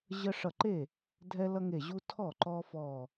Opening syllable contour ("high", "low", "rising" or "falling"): high